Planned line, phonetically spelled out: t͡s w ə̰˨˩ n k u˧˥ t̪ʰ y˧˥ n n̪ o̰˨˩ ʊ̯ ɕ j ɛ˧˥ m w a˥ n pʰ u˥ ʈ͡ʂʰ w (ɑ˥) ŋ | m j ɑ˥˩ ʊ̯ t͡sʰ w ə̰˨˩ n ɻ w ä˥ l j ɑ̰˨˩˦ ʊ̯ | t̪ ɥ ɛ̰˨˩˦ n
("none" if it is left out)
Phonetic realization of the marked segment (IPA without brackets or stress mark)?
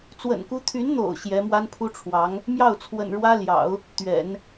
ɑ˧˥